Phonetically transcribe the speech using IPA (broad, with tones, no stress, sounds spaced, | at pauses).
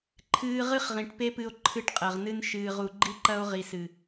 ǃʰ ɨː˧ ʁ ɨ˦ χ ʁ ĩ˨ ʈ p e˦ p ɨ˧ o̯ ǃʰ ɨ˧ ʈ qʼ ɐ˨ ʁ n ɨ˦ n ʃ ɨː˨ ʁ u˨ ɡ͡ǃ i˦ ǃ ɐ˦ o̯ ʁ i˨ s ɨ˨